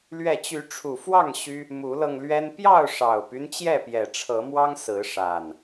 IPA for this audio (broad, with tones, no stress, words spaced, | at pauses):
lɥɛ˥˨ t͡ɕy˨˦ʈ͡ʂʰu˨˩fwɑ˥˨ŋ ɕy˦ | mu˨˦lɤ˧ŋlɥɛ˦n pjɑ˥˨ʊ̯ʂɑ˨˩ʊ̯py˦n t͡ɕjɛ˥˨pjɛ˨˩ʈ͡ʂʰɤ˨˦mwɑ˦ŋ sɹ̩˨˦ʂa˨˩n